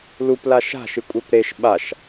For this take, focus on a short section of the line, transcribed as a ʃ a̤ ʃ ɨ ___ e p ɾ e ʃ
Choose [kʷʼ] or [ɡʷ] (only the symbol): kʷʼ